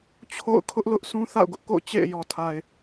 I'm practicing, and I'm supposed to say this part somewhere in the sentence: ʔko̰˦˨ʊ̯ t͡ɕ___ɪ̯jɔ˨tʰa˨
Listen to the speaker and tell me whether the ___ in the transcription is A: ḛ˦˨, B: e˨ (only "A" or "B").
A